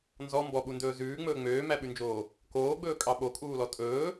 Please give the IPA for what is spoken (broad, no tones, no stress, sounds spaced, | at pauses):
n z ɔ m b ɔ ɓ u n d ɵː z ʉː ŋ͡m ɵː ŋ͡m øː m æ ɓ ʉ n d͡ʒ oː | k oː ɡ͡b ɵː kʼ ɑ ɓ o kʼ uː l ɔ tʼ ɵː